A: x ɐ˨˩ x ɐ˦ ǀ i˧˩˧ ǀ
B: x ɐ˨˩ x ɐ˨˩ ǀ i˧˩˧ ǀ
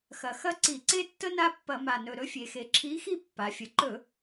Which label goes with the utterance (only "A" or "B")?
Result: A